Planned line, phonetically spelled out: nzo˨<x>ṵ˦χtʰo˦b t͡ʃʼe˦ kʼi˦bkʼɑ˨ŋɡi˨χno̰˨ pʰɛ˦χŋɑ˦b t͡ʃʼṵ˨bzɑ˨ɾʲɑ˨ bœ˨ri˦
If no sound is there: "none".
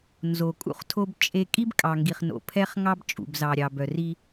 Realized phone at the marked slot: kʼ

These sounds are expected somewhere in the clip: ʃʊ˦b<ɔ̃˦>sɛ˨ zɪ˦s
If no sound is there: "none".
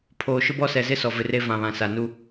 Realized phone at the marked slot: ɔ˦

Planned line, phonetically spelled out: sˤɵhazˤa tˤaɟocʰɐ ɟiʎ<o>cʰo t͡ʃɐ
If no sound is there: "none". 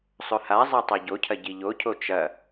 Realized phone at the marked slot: o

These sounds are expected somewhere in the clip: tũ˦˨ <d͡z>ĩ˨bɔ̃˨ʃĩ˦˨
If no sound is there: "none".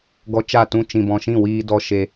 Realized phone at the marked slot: t͡ʃ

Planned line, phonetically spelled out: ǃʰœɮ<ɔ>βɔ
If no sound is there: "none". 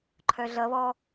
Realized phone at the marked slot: ʌ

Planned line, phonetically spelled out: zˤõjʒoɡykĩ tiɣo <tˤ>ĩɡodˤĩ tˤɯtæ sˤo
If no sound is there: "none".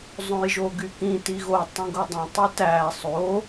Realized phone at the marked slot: tˤ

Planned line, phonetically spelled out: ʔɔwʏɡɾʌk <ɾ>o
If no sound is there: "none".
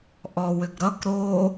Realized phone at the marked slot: ɾ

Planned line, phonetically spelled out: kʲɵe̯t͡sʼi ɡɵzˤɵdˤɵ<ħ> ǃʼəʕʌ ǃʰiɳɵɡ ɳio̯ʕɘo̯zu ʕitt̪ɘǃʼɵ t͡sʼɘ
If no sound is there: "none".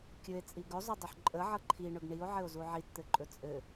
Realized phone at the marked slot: ħ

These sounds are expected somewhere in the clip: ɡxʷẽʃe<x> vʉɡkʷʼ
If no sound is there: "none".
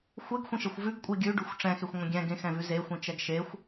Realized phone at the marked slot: xʷ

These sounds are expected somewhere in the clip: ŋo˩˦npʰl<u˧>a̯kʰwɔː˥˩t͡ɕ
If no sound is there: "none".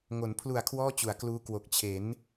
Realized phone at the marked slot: u˨˩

